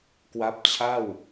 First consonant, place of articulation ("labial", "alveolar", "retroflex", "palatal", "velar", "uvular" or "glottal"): velar